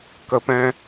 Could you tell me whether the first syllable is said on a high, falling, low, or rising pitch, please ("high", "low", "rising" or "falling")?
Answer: low